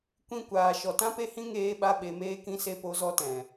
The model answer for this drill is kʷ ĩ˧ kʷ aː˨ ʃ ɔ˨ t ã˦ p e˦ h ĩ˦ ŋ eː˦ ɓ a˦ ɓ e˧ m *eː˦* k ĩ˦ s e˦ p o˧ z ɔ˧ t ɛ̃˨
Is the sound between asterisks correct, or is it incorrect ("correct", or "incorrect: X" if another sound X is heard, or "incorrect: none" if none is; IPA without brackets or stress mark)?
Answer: correct